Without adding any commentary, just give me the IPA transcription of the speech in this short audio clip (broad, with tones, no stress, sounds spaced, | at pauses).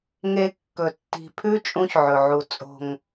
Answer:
ŋ e˧ kː ɵ˨ tː i̤˨ pʰ ʉ˦ t͡ʃʼ ũ˦ ç ʕ ɵ˨ ʕ u˨ t͡sʼ o̤˨ ŋ